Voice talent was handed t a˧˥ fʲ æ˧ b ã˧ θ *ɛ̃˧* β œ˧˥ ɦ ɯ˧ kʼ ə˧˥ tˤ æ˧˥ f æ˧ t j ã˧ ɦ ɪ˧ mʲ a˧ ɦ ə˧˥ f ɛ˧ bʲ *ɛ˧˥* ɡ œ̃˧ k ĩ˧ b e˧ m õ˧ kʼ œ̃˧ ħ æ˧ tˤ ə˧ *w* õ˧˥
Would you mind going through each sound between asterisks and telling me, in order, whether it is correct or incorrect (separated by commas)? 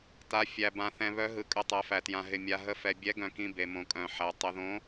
correct, correct, incorrect